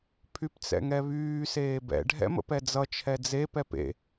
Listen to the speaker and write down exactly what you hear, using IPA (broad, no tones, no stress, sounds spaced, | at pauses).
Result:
pʰ y p t͡s ɛ̰ ŋ ɛ β yː s eː b ɛ̰ ɖʱ ɛ̰ m ə̰ p ɛ d͡z ʌ t͡ʃʰ ɛ d͡z e p ɛ p ḛ